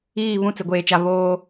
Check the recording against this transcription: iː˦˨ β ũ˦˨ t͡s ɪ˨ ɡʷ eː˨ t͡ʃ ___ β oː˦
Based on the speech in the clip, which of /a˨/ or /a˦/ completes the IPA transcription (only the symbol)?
a˨